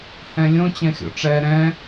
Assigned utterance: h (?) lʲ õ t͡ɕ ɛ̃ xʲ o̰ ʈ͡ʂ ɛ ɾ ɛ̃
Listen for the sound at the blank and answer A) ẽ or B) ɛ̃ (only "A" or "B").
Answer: B